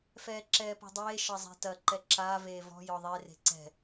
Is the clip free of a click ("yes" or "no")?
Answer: no